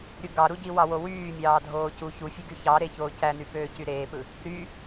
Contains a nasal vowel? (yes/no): no